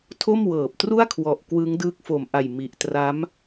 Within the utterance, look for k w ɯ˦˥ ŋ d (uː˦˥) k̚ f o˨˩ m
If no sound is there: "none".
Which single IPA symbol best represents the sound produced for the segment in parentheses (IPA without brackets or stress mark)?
ɯː˦˥